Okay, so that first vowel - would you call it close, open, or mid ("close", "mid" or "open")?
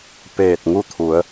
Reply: mid